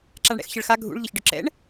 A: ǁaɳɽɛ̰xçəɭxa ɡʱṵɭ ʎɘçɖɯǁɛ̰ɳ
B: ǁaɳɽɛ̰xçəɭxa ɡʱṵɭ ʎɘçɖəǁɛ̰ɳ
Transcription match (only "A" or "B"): A